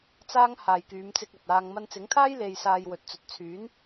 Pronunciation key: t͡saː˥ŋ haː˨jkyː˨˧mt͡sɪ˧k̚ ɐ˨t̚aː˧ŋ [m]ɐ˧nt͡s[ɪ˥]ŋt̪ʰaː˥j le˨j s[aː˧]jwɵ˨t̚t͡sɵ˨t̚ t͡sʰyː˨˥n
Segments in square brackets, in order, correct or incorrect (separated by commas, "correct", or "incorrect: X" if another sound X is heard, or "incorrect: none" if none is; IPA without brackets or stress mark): correct, incorrect: ɪ˨˥, correct